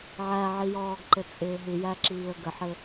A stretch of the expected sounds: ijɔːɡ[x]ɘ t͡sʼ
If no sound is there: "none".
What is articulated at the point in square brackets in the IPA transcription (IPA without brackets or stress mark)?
ǃ